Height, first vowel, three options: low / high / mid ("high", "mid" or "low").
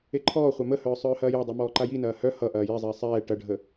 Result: mid